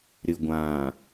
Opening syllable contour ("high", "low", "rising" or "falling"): low